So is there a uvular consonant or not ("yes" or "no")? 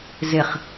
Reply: yes